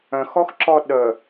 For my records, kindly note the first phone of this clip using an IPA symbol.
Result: œ̃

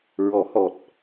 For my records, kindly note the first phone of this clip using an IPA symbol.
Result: ɹ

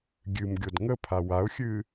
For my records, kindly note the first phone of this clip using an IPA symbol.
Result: ɡʲ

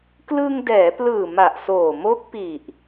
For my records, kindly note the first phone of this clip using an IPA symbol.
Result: k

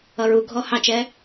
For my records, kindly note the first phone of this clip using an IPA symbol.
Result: ʌ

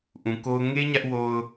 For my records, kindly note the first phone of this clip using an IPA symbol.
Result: ʔ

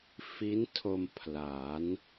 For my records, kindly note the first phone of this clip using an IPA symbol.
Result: f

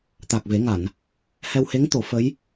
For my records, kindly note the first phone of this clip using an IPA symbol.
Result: t̪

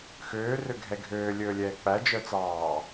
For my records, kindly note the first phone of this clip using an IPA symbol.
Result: x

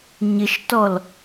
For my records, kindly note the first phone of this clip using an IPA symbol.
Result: ɲ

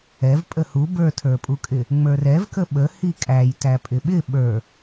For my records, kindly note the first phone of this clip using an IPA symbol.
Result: ɛ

